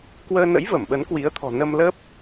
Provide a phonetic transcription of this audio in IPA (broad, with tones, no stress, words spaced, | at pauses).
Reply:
kwəː˧nə̰˧˥j və˧˩mɓə˨˦nkwi˨˦ə̯ t̪ʰɔ̤˨˩ nə˧mlə˦˥p̚